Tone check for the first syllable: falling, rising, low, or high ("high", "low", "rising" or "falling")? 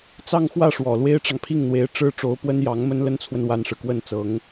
falling